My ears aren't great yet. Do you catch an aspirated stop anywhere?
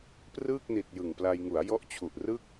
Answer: yes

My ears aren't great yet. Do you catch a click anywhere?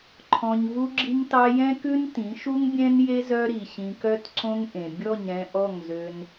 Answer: yes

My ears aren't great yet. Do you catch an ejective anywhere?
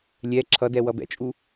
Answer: yes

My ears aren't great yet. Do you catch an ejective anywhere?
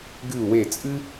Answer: yes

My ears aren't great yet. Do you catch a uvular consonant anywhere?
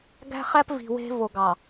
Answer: yes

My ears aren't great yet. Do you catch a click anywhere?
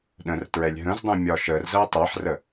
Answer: no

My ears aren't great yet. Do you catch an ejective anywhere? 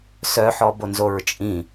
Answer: yes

